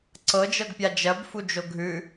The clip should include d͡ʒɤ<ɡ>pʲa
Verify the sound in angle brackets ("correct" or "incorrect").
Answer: correct